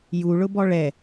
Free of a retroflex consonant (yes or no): no